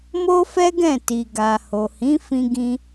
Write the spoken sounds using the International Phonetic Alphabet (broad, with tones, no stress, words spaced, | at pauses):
mo˦fɛ˦ɡɛ̃˦˨ ti˨ɡa˨ ho˨hĩ˨˦fĩ˧ɡĩ˧